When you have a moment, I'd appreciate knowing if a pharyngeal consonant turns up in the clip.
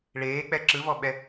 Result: no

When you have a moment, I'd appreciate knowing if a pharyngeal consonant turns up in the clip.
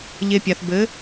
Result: no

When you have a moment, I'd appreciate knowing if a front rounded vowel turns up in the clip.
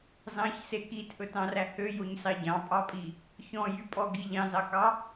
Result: yes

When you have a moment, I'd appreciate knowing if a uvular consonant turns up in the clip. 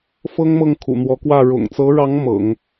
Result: no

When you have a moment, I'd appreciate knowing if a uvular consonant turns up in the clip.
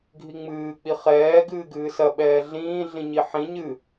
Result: yes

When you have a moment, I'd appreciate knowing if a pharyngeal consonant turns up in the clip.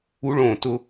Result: no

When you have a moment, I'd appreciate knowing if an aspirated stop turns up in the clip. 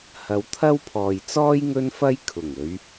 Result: yes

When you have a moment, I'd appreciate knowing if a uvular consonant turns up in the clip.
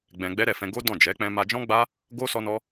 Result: no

